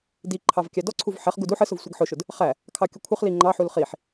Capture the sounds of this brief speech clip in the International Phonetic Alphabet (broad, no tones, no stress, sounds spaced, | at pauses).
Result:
d i ǃʰ ɑ v kʲ æ d ɔ ǀʰ u v ħ ɛ χ ɡ u d u ħ ə s ʊ v sʷ i ɡ ħ ʊ ʃ ʊ d | χ æ | kʰ ɑ kʲ ʊ kʷʰ ɪ χ l i ŋ͡ǃ ɑ ħ u l χ i ħ